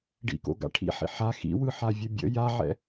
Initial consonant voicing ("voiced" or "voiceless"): voiced